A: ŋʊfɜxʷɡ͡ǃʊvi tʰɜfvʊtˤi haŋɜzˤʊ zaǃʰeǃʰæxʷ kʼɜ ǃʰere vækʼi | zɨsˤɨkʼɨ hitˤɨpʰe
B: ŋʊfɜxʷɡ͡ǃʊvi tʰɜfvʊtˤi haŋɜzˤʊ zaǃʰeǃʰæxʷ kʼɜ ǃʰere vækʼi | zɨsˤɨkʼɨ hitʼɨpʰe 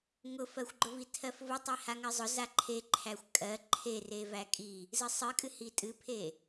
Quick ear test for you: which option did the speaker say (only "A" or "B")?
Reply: B